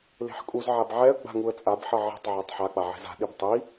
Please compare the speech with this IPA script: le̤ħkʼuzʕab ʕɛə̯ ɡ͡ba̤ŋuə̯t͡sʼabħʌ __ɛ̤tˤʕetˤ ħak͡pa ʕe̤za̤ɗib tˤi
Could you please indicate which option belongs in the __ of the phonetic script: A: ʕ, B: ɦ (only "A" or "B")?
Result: A